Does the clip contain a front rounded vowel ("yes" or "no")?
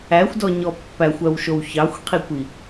yes